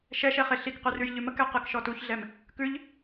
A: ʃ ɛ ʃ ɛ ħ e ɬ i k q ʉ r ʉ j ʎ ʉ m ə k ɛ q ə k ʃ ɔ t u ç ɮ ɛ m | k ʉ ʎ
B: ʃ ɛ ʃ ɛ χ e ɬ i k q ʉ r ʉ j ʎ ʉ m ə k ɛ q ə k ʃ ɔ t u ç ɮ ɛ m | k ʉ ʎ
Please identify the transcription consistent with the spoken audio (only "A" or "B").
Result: B